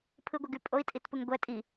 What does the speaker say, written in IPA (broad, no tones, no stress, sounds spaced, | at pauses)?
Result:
pʰ ɯ ɡʷ i ɡ y pʼ o i̯ tʼ i t p ɯ ŋ ɡʷ ɛ tʼ i